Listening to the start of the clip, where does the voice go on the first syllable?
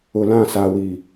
low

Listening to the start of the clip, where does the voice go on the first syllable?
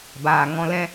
low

